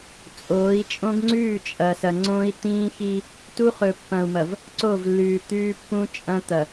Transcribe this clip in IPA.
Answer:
t͡sʼoː˨˦i̯t͡ʃʼõ˦ɡ ŋ͡ǀʉː˦˨t͡ʃʼɐ˨sɐ˨ ŋ͡ǀõ˦i̯t̪ĩː˦xi˦ | tu˦χɵ˨pːɐ̃˨u̯mɐ˨v | ǀo˦˨vlːʉː˨ t̪ʉː˦pːũ˦t͡ʃʼɐ̃˦ t̪ɐ˨

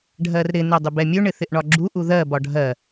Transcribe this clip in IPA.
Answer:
ɖʱɜrɾɪ nɜdˤɪbɛmʲɵ ɳɪθɪʔɳɒɡ͡ǁu ʔuðɜ bɒɖʱɜ

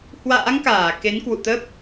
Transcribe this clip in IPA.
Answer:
hwa̰ː˧˥ŋkaː˧˩ ke˨˦nkwṵ˧˨t̪ə˦˥p̚

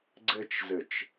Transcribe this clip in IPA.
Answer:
ɡ͡ǀɘt͡ʃzɘt͡ʃ

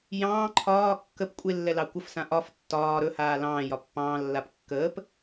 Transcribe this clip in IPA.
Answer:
jɑ̃ː ǃʰɒː kːəp kʷʼelːɛ lɑkʷəfsã ʔɒf tːɒː ɾɵhaː lɑ̃ːjɒ pːɑ̃ːlːap kːəːp

